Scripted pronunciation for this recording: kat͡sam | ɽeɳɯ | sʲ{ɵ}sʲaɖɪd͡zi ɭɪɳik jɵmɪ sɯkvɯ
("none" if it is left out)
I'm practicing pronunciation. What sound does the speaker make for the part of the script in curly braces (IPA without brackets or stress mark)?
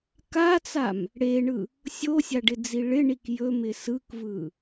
o